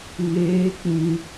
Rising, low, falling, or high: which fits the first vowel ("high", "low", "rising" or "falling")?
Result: rising